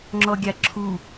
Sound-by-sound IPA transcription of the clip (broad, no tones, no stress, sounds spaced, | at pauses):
ŋ͡ǁ ɔ ɡʲ a ǁʰ u